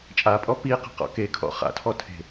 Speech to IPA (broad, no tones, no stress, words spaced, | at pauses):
t͡ʃʼapʼɔ piqɛ̤ qɔ̰kekʰɔ̰ χa̰tʰɔ tʰe̤